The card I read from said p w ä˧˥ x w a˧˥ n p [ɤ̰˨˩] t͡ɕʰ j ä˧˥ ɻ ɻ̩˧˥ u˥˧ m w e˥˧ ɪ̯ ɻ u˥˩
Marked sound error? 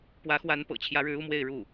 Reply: no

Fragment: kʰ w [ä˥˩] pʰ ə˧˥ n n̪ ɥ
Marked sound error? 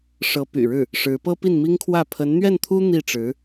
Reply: no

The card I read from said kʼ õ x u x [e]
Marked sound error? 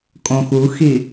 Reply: yes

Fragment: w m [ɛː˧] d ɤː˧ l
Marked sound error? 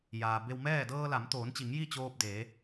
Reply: yes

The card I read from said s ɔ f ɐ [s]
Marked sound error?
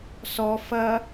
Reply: yes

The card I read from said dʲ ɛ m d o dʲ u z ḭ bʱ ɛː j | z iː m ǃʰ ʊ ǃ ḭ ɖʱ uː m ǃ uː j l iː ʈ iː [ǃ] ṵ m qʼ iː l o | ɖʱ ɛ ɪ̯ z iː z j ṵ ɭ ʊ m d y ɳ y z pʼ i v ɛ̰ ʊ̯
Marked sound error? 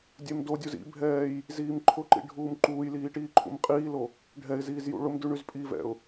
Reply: yes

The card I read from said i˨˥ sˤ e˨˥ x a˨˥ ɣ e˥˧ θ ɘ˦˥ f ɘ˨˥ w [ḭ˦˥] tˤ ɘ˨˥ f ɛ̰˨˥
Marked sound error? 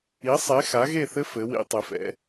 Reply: no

